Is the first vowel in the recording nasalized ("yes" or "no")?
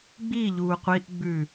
no